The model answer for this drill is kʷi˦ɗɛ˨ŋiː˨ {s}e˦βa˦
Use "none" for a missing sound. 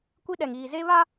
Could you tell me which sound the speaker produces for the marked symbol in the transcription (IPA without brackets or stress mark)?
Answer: z